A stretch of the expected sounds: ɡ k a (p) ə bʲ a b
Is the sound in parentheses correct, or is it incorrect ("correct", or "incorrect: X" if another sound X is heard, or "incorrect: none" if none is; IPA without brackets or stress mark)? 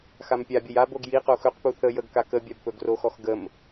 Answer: incorrect: k